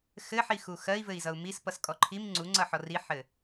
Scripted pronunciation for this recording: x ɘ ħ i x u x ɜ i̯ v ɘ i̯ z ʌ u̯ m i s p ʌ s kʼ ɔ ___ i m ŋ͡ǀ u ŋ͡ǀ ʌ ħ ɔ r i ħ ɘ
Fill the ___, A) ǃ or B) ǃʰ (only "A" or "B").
B